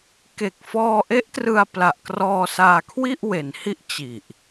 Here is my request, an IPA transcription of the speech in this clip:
ke˨˩k̚fɔː˧ʔe˦˥ʔtrɯ˧a̯ pla˨˩ʔkrɔː˧saː˧kʰwi˥˩ʔ we˩˦nhi˥˩ʔ t͡ɕi˨˩ʔ

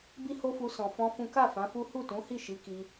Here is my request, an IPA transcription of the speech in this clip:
bi˦ho˦fu˧ sɔ̃˨fɔ̃˧ fũ˦ ka˦˨ fã˨˦fu˦ hu˦˨tũ˨˦hi˦˨ ʃi˨˦ki˧

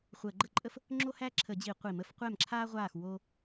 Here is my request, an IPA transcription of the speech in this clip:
χʷəː˧˩˧ɡ͡ǃə˥˩ǃʼə˥f | ŋ͡ǁo˥hæ˥ǁʰə˧˩˧d͡ʑi˧˩˧ qʷi˧˩˧mə˥f qʷɛ˥˩mǁʰaː˥ʁʷaː˥˩x wo˥

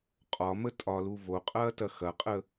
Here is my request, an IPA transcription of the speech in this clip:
qʼɒmə tʼɒlu voqʼɐːtɐ xɐqʼə

